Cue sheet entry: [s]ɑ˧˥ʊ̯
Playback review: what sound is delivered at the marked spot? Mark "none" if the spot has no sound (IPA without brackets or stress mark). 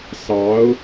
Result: s